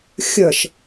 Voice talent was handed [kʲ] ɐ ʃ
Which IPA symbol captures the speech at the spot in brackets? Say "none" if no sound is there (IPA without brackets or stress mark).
xʲ